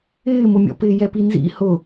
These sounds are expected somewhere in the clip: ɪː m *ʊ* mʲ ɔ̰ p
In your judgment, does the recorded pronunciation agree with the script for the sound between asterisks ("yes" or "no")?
yes